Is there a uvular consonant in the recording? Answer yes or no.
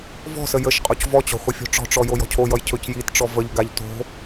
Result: yes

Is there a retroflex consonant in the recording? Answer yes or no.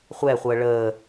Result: yes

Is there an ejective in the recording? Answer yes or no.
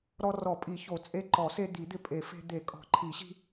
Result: yes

